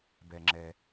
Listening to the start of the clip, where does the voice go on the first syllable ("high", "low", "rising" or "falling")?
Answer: low